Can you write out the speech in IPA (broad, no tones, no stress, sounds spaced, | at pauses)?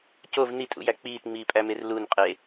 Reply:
c o v n i tʼ ṵ j æ k͡p iː t ŋ͡m iː pʼ æ m e r l u n qʼ e